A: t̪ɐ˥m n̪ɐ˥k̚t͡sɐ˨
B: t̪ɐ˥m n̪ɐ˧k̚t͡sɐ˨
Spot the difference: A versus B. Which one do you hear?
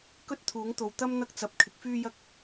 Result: B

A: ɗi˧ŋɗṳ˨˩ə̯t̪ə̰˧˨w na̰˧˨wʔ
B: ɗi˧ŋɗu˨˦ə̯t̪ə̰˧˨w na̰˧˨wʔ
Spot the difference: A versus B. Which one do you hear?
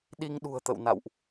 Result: A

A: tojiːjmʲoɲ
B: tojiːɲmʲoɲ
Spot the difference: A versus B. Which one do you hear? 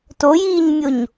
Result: B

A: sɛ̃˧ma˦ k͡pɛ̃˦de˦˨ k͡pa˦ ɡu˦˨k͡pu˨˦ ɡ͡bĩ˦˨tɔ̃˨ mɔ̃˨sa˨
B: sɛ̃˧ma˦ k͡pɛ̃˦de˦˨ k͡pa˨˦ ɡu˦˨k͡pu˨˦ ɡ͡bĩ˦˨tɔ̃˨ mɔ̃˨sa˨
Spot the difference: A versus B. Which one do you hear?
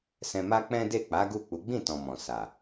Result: B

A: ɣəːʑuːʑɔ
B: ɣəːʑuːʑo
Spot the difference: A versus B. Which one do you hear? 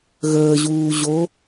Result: B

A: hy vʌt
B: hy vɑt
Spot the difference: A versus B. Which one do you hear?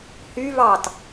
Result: B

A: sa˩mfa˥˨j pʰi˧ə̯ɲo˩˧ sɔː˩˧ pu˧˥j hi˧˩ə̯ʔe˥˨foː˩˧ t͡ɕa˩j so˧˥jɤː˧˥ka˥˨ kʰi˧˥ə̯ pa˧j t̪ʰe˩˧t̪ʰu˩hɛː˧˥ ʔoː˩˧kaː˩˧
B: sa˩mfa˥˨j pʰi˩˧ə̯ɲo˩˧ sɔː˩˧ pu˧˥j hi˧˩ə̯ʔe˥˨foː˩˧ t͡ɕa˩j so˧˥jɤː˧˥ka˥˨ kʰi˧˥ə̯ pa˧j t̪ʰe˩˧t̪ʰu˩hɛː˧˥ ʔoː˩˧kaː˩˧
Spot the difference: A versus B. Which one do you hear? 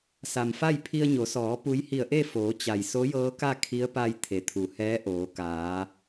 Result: A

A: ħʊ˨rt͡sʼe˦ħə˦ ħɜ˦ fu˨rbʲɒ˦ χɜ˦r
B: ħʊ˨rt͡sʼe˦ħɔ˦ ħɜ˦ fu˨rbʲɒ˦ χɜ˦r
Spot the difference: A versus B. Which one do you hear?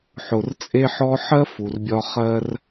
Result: B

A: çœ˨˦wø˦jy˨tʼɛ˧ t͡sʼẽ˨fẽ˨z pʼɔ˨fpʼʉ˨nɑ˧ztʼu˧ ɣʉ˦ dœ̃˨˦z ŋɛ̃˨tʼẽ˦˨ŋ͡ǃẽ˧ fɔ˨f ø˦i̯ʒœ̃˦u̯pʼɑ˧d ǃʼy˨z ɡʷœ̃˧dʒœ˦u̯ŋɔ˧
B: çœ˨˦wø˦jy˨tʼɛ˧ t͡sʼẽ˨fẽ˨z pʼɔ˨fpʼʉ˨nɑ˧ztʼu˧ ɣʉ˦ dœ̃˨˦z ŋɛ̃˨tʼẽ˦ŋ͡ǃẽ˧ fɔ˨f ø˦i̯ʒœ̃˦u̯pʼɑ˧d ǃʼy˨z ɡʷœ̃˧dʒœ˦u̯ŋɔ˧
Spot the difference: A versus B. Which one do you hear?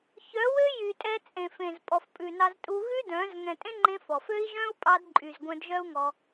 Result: B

